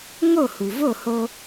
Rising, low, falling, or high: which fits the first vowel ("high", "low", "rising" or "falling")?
falling